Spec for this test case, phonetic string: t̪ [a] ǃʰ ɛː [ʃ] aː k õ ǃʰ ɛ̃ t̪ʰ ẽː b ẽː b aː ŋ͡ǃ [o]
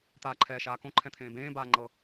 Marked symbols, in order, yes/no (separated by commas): no, yes, no